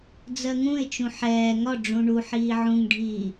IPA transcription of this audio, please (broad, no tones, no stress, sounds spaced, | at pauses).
d͡z ɜ ŋ ũ ɪ̯ t͡ʃ ũ ħ ɛː ŋ ɒ ɖ͡ʐ ũ ɳ u ħ iː ʕ ũ ŋ ɖʱ iː